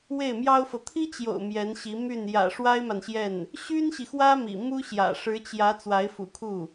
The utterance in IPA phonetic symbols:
w e˥˩ ɪ̯ m j ɑ˥ ʊ̯ f ɤ˨ t̪ʰ i˥ t͡ɕ j o̰˨˩ ʊ̯ m j ɛ˧˥ n ɕ i˧˥ m y˥˩ n j ä̰˨˩ ʂ w a˥ ɪ̯ m a˨ n ɕ j ɛ˥˩ n | ɕ y˥ n ɕ i˨ x w ä˥ m ḭ˨˩ m u˥ ɕ j ä̰˨˩ ʂ ɻ̩˧˥ t͡ɕ j ä˧˥ t͡s w a˧˥ ɪ̯ f ṵ˨˩ kʰ u˥˩

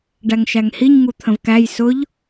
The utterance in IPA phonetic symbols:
ɖ æ ŋ ʃ æ ŋ h i ɲ ŋ u t̪ʰ ə̃ v k æ j s ʊ ʎ

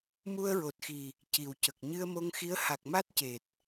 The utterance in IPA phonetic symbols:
m u˧ ə̯ ɹ o˨˩ t̚ x i˨˩ | c i˨˩ w c ə˨˩ k̚ ɲ ɨ˧ ə̯ m o˧ ŋ x i˧˥ ə̯ h a˨˩ k̚ m a˦˥ t̚ c e˨˩ t̚

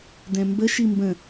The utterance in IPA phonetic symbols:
d ɛ̃ m b ə ʃ i m b ə̃

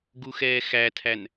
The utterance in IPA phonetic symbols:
ɡ u x ɛː x æ tʰ æ n

